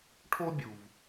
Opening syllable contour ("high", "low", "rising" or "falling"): high